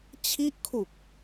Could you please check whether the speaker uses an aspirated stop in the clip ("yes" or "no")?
yes